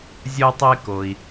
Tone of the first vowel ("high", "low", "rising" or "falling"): high